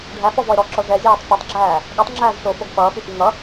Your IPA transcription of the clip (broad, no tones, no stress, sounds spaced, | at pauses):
ɖʱ æ f ɔ v ɔ e̯ ɾ ɔ ǁ ɔ ʐ ɛ zʲ æː tˤ f y tˤ ɡ͡ǁ æː | ɠ ɛ tˤ ŋ͡ǁ æː z ʂ o f o ɡ f ʌː f y f i ŋ ʌ